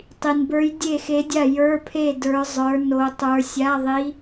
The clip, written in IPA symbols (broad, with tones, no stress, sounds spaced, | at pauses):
tˤ i˨ n b ə˞˧˥ j dʲ e˥˨ x e˧˥ dʲ a˥˨ j ə˞˧˥˧ pʰ e˥˨ d ə˞˧˥ zˤ ə˞˧˥ n o˧˥ tˤ ə˞˧˥ sʲ a˧˥˧ ðˤ i˧˥